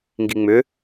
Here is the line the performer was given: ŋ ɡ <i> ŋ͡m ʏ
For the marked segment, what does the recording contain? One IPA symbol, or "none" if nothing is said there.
i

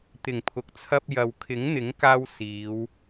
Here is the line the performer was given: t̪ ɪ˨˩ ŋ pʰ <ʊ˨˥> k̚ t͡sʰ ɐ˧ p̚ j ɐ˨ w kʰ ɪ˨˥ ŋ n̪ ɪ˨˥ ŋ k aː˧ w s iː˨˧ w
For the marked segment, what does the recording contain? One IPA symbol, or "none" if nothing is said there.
ʊ˨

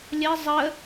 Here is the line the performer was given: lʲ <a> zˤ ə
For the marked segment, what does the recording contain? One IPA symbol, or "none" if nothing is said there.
ə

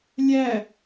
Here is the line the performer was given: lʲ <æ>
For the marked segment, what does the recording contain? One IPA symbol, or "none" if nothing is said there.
æ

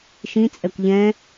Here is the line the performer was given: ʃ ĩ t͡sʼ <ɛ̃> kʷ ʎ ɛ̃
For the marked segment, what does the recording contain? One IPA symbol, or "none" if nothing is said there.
ɛ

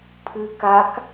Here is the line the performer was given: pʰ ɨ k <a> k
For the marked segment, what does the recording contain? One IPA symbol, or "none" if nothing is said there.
a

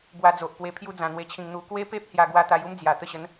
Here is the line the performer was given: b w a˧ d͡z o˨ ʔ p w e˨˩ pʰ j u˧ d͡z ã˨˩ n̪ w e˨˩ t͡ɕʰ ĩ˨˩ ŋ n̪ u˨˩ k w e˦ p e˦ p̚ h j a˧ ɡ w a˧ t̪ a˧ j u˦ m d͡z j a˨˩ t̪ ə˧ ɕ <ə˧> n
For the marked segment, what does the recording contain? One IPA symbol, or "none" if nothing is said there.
ə˨˦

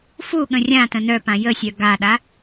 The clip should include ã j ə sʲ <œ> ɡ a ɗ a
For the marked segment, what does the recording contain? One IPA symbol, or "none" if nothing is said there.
œ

